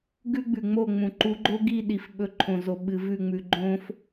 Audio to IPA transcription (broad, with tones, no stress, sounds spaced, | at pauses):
ɡ ʉ˦ ɡ͡b ʉ˨ ŋ͡m o˦˨ ŋ͡m ũ˨ ǃ u˨˦ ɡ͡ǃ o˦ ɡ i˦˨ ɗ i˨ f ɓ ɵ˨˦ ǃʰ õ˨ z o˨ ɓ ɨ˨ v ʉ˦˨ ŋ͡m ʉ˨ ɡ͡ǃ õ˦ f